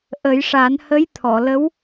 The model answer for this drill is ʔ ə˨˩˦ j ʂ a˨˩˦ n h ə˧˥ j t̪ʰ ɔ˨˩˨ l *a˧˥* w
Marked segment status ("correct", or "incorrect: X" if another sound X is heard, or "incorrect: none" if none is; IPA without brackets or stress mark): incorrect: ə˧˥